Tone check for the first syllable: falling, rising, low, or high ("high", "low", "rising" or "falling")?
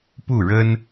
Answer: falling